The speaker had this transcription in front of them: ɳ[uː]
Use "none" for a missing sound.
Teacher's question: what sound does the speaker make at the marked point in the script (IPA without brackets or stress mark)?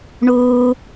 uː